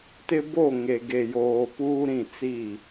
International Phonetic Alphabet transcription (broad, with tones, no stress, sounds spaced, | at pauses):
t ɪ˦ b o˦˨ ŋ e˨ ɡ e˨ j oː˨ p uː˦ ɾ ĩ˦˨ t͡s i˦˨